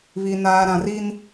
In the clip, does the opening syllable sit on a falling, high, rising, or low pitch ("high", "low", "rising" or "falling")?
low